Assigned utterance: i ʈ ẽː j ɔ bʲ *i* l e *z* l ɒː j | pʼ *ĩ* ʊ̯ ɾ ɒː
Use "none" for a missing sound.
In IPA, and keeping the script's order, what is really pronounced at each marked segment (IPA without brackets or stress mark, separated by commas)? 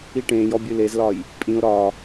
ɨ, z, ĩ